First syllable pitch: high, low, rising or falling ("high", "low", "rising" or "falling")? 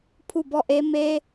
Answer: falling